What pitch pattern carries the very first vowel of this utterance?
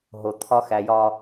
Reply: low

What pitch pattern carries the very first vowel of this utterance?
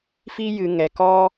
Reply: high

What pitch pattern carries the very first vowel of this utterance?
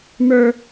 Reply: high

